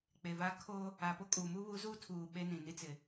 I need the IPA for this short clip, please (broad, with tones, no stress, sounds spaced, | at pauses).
k͡p e˨ v a˦ kʰ oː˦ | a˨ p o˦ kʼ u˨ m u˦ β u˨˦ z uː˦ tʰ uː˨ ɓ e˦ n ĩ˨ n i˦ t͡s ɪ˨